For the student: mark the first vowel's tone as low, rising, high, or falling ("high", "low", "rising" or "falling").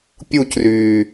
falling